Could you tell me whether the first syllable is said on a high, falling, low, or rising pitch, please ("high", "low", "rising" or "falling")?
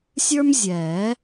high